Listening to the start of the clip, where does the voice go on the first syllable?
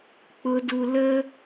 high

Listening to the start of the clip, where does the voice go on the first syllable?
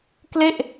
falling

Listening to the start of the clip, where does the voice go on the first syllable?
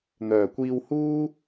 low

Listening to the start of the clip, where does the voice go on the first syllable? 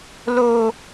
low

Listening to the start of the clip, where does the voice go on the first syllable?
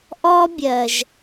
high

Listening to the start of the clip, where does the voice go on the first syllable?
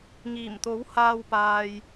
low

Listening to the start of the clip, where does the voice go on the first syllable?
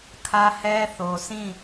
high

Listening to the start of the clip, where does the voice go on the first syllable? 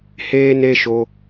high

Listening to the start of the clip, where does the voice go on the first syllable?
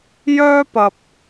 high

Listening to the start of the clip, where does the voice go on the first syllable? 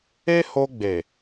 high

